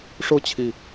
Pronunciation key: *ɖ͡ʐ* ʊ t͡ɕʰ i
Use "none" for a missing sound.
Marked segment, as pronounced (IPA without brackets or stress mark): ʂ